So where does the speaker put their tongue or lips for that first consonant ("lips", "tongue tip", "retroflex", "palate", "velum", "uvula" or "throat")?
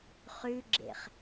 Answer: uvula